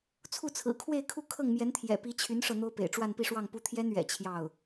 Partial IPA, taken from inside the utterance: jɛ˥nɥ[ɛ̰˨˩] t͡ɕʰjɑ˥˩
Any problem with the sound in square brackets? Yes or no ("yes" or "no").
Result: no